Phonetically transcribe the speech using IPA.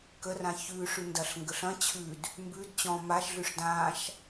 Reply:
k ə r ã ç ʉ ʂ ʉ n d ɐ ɬ ŋ ɡ ə ɬ ɐ̃ t͡ɕʰ ʉ d | m b ʉ d t͡ɕ ɔ̃ m a ʃ ɮ ʉ ʂ d ã ʃ

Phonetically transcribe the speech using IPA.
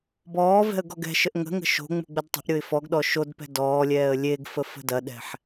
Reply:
b ɔː v ɛ̤ ə̯ ɡ ɔ ɡ ɛ̤ ʃ ə ʔ ŋ ə̤ ŋ ə̤ ʃ o̤ ŋ͡m ṳ ɡ͡b ə d tˤ ə̤ ʔ ɾʲ o ɪ̯ f ɔ ɡ ɗ ɔ ʃ o d p ɛ̤ d ɔː lʲ ɛː ə̯ lʲ e ɡ f ə f ə̤ d ɐ ɗ ɛ̤ ħ

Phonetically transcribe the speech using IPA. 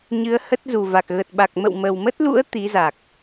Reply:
ɲ ɨ˨˦ ə̯ h ə˦˥ t̚ z u˨˩ v a˨˩ k̚ ɣ ə˨˩ t̚ ɓ a˨˩ k̚ m ə̰˧˨ w m ə˨˩ w m ə˦˥ t̚ l ṵ˧˥ ə̯ t̪ i˨˦ z a˨˩ k̚

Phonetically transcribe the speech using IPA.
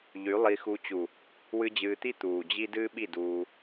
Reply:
ʎ y˨˦ lˠ i˧ x u˧ t͡ɕ u˨ | w ɨ˧ d͡ʑ ɨː˧ t̪ i˦ t̪ uː˨ d͡ʑ i˦ d ɨː˦ ɓ i˦˨ d uː˧

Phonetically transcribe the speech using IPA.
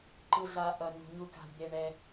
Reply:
ǃ ɯ˩ ɮ a˩ ʔ ʌ˩ n ṳ˩ ɲ u˩ k a̤˩ ɖ d̪ e˩ ɳ ɛ˩

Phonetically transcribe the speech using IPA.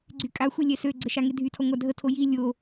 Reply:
ɡ͡ǀ y kʼ a xʷ i lʲ ɛ s ø ɡ͡ǀ ə ʃ a ŋ e dʱ y tʰ ɔ ŋʷ a dʱ ə tʰ o j i lʲ o

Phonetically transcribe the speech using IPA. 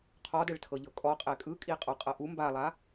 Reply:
qʰ ɔ d ɛ ɭ tʰ ɤ ʎ ɤ kʼ ɔ qʼ ɛ kʼ ɯ kʼ i qʼ ɔ qʼ ɤ ʔ u m b a lˠ a

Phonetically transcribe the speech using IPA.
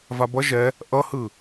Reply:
v a b ʌ ʒ ɛ | ʔ ʌ h ɯ

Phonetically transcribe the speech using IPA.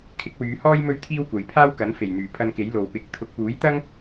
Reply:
kʰ ɪ˨˥ k̚ w yː˨˧ h ɔː˥ j m ɵ˥ ɥ t̪ʰ iː˥ w kʷ ɐ˨ j pʰ aː˥ w k ɐ˨˥ n f e˨˩ j n̪ yː˨˩ pʰ ɐ˧ n k e˨˥ j l o˨ w p ɪ˨˥ k̚ t̪ʰ ʊ˧ k̚ p uː˨˥ j t̪ ɐ˥ ŋ

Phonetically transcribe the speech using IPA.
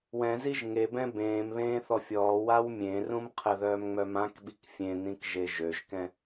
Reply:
w ɛ̃ z i ʒ ŋ e b ɛ̃ b ẽː m β ẽː θ ɔ fʲ ɔː w a w mʲ ẽ r ũ m qʰ ə ð œː m ŋ͡m œ m ã k ɓ i k fʲ ẽ n ĩ k ʒ e ʒ ø ʒ k ɛ̃

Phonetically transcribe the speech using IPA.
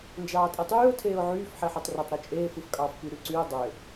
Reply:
n d͡ʒ ɑː tʼ e tˤ yː ʊ̯ tʰ eː ʊ̯ ʕ yː f ħ e ħ o tˤ r ø tˤ ɾ o t͡ʃʼ eː f ɯ f kʼ ɑ f p y ɾ y ǀ y ʊ̯ dˤ ø

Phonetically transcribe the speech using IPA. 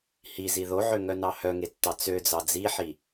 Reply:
h i z i ð o ʕ ø ŋ œ n ɑ h œ ŋ e tː ɑ t͡s ø d͡z ɑ d͡z i ħ i

